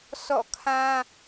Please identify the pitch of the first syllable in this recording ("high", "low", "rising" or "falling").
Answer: falling